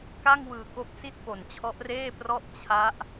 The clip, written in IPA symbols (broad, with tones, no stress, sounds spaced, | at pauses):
k a˥˩ ŋ w ɯː˨˩ k o˦˥ k̚ s i˥˩ t̚ p o˨˩ n t͡ɕʰ ɔ˦˥ ʔ r eː˥˩ p r ɔ˥˩ ʔ t͡ɕʰ a˦˥ ʔ